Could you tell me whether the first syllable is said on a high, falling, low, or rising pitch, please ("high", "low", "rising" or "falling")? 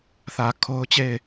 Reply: low